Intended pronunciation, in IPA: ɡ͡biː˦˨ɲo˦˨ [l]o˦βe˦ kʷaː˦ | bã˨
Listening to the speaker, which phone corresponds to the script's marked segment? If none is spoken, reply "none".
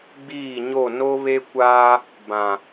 n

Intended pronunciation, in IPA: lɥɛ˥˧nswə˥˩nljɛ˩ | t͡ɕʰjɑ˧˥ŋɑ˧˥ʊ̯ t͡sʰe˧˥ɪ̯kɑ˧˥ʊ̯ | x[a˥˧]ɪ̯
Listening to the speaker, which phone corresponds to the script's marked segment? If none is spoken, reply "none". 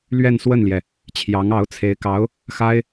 a˥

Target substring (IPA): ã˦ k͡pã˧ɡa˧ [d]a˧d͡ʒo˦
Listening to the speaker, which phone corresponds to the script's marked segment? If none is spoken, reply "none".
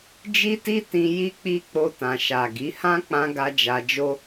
d͡ʒ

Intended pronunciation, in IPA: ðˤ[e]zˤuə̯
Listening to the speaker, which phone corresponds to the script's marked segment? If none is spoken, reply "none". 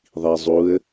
i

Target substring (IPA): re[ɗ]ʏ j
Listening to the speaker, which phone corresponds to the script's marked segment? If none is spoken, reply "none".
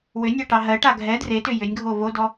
t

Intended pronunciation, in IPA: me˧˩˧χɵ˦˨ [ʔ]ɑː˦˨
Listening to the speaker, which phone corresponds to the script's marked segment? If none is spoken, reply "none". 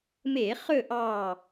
ʔ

